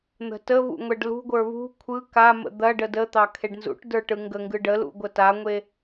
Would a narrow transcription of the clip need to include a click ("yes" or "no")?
no